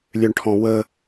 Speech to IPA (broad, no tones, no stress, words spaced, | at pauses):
lʲøɳʈʰɔ̃wə